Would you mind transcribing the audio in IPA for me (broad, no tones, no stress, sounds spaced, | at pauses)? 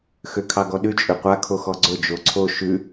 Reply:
x ø kʰ ɑ ɡ ɔ ɗ ʉ t͡ʃʼ ø qʷ a kʰ o x ɔ ɡ͡ǀ ɵ d͡ʒ o ǀʰ o ʃ ʉ